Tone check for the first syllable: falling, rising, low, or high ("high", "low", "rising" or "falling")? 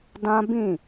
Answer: high